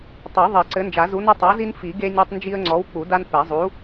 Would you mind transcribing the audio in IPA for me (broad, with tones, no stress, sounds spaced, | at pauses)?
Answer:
tˤ u˨˩˦ ðˤ i˨˩˦ ǀ ɘ˨˥ n d͡ʒ a˨˩˦ z u˨˥ n ɐ˦ tˤ a˨˥ z i˦ n f i˨˩˦ ɡ e˦ nʲ ɐ˦ tˤ n d͡ʒ i˦ ə̯ ŋ͡ǀ ɔ˨˥ w k͡p u˨˩˦ d a˦ n p ɛ˨˩˦ zˤ u˨˥